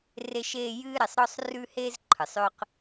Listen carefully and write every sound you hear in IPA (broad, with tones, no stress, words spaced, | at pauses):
re˥ʃeː˥ jɨ˥ɾe˩sˤ ɾɔ˥sˤrʉ˥he˥z ǃʰɨ˩sˤø˥q